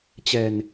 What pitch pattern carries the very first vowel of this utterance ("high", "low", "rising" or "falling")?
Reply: low